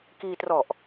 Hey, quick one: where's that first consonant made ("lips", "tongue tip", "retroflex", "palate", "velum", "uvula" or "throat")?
velum